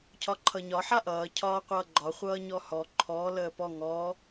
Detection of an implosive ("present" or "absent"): absent